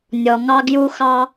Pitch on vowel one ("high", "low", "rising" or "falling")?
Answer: low